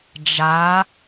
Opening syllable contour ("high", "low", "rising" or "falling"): rising